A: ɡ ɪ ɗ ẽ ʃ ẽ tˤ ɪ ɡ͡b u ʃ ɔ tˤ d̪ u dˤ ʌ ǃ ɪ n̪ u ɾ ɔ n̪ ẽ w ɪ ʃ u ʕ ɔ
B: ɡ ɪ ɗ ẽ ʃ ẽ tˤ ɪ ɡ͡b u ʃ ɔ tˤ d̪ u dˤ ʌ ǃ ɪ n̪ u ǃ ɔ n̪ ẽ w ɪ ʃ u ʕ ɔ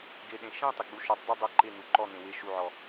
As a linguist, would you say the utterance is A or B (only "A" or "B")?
B